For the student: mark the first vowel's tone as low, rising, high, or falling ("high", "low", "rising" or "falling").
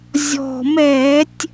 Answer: low